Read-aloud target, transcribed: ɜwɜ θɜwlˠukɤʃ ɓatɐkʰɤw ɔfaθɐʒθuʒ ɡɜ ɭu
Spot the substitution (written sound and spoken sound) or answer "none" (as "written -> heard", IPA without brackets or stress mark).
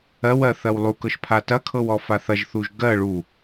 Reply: ɓ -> pʰ